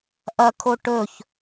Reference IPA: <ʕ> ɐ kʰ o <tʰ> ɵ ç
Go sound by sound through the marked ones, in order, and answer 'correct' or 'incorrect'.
incorrect, incorrect

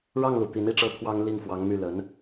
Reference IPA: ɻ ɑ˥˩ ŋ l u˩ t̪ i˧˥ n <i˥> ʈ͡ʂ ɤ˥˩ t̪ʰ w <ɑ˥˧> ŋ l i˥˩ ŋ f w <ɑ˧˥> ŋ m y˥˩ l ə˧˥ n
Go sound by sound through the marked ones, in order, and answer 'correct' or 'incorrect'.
incorrect, incorrect, correct

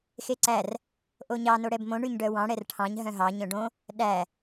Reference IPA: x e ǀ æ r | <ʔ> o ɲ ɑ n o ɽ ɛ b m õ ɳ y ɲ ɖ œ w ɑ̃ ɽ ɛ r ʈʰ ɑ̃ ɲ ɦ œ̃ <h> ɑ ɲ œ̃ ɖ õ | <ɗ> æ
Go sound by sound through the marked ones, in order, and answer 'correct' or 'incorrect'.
correct, incorrect, correct

